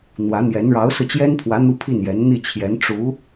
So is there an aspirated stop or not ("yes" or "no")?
yes